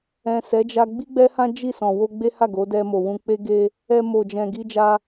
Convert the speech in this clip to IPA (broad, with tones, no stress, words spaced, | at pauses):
ɛ̃˨sɛ˨˦d͡ʒa˧ ɡ͡bi˦ɡ͡bɛ˦hã˦ d͡ʒi˦˨sɔ̃˨ wo˧ɡ͡be˦ha˦˨ ɡo˨˦dɛ˧mo˨wũ˧ k͡pe˦ɡe˦ | ɛ˧mo˨d͡ʒɛ̃˨ ɡi˧d͡ʒa˧